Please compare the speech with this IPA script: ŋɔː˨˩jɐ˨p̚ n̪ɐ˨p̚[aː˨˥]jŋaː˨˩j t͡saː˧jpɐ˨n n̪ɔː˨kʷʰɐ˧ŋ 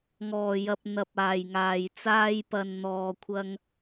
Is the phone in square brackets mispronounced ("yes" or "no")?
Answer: yes